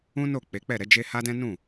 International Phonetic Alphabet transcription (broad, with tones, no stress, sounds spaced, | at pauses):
ũ˦ n o˦˨ k͡p e˨˦ k͡p ɛ˦˨ ɾ ɛ˧ d͡ʒ e˧ h a˦ d ɛ̃˦ n ũ˦˨